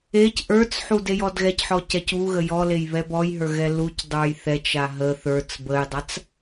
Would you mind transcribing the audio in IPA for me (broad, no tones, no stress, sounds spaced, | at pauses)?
e c ʔ ə˞ t͡s ħ u d e j ɔ d ɣ ɛ c ħ ɔ c ɛ c u ɣ ə j ɔ l e j β ɛ b ɔ j ɦ ə˞ ɣ ɛ l u c dˤ ə˞ j θ ɛ t͡ʃ a ɦ ə θ ə˞ t͡s b ə j dˤ a t͡s